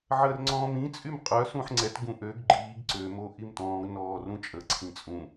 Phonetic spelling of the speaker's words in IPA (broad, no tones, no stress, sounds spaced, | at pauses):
ʕ əː r ŋ͡ǀ ɔ̃ː m ĩ t͡sʼ y m qʼ œ s ũ ħ ŋ͡ǀ ɛ t ɡ ũ ʔ ø ɡ ɡ͡ǃ iː ɡ ǀ ø m o ʔ i m t ɔ̃ː ɡ n ɔː r ũ t͡ʃʼ ə ǀʰ ĩ t͡sʼ ũ